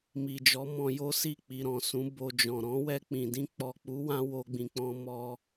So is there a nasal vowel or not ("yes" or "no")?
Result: yes